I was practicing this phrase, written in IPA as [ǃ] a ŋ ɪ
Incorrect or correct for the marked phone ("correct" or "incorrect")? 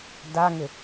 incorrect